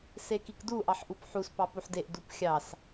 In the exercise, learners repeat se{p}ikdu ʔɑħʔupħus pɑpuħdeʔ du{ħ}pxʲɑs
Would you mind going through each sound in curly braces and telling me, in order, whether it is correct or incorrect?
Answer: incorrect: k, incorrect: none

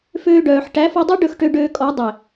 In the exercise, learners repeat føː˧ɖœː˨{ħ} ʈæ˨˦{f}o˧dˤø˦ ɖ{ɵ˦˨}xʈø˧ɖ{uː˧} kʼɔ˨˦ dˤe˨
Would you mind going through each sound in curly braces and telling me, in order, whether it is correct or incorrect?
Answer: correct, correct, correct, incorrect: øː˧

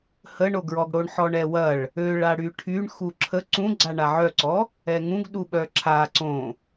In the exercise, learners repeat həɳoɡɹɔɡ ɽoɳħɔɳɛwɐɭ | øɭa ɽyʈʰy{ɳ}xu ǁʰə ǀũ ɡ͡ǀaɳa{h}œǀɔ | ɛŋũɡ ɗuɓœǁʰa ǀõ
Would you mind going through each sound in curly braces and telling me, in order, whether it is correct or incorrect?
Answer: correct, incorrect: ʕ

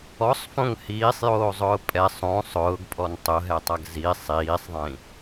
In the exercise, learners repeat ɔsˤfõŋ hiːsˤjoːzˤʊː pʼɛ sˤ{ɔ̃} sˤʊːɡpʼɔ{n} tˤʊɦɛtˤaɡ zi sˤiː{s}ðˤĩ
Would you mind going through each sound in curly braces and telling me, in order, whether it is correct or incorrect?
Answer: incorrect: õ, correct, incorrect: sˤ

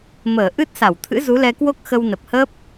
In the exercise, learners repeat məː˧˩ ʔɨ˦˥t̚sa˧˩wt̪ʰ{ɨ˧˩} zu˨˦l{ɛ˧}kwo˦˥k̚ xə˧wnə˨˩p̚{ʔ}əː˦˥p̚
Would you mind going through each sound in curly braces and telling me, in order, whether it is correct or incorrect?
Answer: incorrect: ɨ̰˧˥, correct, incorrect: h

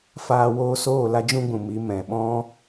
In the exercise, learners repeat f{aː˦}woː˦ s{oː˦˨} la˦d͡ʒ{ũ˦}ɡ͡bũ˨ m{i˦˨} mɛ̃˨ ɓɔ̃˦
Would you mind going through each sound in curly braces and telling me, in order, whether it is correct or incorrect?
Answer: correct, correct, correct, incorrect: i˨˦

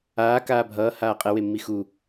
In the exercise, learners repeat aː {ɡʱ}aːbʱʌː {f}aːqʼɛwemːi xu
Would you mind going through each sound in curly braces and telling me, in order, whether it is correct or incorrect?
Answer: incorrect: k, incorrect: h

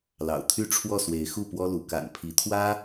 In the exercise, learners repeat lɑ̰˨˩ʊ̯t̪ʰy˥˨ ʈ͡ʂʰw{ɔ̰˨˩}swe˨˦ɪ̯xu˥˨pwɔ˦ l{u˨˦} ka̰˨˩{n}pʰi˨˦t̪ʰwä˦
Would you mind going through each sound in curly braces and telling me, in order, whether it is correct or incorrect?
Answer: incorrect: ɔ˥˨, correct, correct

